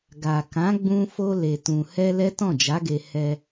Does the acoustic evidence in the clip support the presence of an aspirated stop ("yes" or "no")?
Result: no